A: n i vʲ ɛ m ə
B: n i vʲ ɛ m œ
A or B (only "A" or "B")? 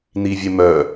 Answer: B